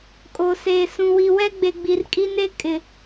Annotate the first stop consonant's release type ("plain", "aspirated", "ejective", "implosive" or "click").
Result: ejective